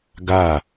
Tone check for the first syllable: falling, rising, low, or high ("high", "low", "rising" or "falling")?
falling